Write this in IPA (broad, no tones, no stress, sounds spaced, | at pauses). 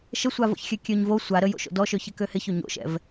ʃ ə sʷ a v o̰ ç xʲ ø kʲ ø ɲ v o sʷ a ɾ ə j o̰ ʃ o̰ d ɔ ʃ ø ç ɪ k ø h ɪ ç ø ɲ o̰ ʃ ɛ̰ v